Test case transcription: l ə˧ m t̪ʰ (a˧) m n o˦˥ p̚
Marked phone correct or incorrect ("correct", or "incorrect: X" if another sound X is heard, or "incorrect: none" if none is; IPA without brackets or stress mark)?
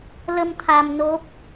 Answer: correct